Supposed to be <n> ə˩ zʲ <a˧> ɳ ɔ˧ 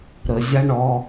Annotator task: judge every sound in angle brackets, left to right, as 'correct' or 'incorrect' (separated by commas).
incorrect, correct